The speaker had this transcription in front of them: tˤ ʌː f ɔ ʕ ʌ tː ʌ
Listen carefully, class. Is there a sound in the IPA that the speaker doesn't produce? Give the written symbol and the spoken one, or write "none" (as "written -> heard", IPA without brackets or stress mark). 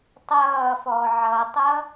tː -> tˤ